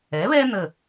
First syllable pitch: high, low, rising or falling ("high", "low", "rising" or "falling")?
rising